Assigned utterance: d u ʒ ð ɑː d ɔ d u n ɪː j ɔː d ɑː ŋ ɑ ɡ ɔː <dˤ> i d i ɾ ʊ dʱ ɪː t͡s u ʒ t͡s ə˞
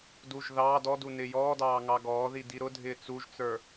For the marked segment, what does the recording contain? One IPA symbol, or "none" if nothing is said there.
ð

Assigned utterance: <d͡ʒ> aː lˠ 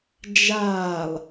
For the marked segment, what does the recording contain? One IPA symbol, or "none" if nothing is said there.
d͡ʒ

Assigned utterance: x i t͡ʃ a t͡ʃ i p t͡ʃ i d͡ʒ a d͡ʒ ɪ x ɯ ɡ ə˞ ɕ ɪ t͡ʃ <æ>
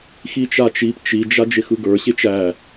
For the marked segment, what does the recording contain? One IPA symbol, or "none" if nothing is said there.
æ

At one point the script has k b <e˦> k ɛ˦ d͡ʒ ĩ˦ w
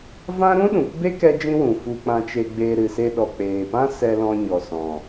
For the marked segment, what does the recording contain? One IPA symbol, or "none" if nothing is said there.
e˦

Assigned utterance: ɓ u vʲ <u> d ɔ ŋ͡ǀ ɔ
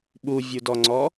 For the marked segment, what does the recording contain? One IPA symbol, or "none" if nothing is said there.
u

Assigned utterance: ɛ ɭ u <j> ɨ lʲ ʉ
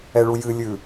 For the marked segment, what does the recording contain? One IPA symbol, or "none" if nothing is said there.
j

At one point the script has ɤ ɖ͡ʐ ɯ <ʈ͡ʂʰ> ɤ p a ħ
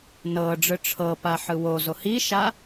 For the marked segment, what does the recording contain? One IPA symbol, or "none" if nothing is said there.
ʈ͡ʂʰ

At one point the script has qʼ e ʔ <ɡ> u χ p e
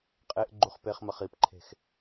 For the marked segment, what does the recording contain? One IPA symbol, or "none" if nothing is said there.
ɡ͡ǃ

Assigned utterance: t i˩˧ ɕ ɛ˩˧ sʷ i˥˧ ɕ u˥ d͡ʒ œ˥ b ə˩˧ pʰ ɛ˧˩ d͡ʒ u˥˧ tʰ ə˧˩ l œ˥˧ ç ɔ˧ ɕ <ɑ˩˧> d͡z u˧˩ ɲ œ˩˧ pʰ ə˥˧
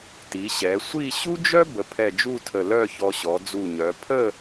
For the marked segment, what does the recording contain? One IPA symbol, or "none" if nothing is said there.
ɔ˩˧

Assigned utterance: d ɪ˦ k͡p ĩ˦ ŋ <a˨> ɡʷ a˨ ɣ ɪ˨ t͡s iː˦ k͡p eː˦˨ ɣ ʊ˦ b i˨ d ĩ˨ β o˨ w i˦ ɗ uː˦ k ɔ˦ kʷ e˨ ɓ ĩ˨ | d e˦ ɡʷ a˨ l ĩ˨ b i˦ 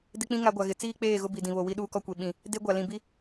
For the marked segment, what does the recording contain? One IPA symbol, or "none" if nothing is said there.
a˦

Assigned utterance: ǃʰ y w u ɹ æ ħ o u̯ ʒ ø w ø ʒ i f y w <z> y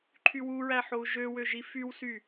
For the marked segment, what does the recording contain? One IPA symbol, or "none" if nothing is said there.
s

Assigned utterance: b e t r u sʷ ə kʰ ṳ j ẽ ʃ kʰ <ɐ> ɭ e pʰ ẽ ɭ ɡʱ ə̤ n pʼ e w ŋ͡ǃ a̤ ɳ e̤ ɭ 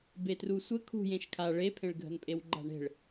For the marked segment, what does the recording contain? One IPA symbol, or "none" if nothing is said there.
a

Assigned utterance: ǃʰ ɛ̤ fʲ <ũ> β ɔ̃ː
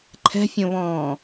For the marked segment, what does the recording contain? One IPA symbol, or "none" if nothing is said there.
õ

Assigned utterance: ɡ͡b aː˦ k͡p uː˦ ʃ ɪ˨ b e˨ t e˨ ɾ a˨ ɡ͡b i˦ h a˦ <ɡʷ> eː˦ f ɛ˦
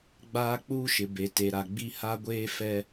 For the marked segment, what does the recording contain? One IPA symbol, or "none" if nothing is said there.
ɡʷ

